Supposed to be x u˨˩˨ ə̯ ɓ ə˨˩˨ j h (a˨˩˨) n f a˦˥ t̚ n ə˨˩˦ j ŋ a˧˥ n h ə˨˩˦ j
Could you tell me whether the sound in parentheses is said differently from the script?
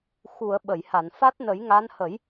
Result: no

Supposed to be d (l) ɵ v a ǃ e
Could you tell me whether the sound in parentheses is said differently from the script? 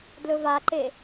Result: no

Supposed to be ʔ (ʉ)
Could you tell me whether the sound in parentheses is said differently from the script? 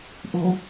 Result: yes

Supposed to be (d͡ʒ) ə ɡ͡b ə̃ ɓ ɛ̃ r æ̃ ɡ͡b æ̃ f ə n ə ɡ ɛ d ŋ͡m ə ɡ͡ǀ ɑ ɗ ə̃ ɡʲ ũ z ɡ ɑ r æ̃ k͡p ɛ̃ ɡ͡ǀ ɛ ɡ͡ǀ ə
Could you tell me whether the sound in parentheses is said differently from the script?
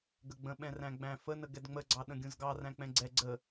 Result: yes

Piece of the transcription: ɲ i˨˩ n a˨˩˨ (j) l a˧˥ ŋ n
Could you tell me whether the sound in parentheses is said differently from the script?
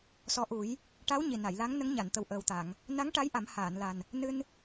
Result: no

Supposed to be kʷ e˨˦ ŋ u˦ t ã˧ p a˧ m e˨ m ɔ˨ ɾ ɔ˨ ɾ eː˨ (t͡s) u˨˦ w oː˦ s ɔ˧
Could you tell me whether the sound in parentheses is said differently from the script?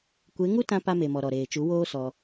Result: yes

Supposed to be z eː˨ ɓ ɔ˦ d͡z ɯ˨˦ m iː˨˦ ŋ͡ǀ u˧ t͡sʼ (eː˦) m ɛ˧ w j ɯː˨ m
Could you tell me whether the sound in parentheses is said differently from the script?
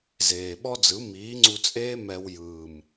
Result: no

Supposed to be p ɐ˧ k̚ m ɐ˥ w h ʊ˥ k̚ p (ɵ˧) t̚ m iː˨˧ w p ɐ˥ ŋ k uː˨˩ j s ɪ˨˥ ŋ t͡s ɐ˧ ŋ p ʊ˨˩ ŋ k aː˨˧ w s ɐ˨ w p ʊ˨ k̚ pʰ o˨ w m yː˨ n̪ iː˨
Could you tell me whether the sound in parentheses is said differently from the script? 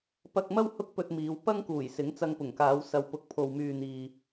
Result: no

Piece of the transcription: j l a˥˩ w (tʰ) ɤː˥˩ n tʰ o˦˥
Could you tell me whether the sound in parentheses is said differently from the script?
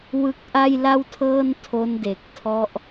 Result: no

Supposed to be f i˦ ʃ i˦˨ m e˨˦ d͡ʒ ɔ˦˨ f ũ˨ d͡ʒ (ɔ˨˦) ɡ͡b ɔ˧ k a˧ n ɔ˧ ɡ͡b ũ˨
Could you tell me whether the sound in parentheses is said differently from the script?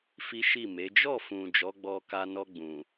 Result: no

